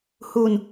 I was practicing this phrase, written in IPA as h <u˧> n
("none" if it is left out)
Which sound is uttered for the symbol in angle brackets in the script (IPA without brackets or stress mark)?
u˧